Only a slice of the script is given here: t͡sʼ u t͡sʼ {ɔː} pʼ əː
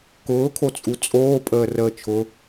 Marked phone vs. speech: incorrect: oː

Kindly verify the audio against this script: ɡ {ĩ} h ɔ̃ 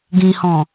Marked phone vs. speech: correct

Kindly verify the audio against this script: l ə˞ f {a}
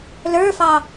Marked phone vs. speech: incorrect: ɑ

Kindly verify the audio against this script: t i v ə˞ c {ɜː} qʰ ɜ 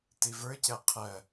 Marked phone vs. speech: incorrect: ɜ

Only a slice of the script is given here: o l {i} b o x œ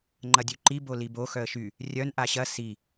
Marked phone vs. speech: correct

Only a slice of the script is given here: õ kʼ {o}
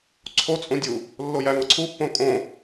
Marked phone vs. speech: incorrect: õ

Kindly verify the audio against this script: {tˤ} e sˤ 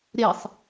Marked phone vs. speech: incorrect: ɾ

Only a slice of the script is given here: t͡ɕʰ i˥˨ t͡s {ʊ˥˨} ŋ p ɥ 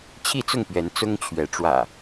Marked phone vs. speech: correct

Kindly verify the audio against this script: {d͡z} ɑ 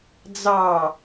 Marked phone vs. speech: correct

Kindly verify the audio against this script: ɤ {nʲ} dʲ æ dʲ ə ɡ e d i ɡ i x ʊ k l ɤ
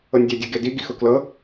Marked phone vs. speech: correct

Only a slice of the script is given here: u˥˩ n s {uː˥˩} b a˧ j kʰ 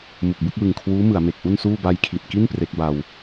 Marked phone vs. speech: correct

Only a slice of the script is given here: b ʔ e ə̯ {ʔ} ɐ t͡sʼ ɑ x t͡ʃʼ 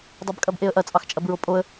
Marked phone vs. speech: correct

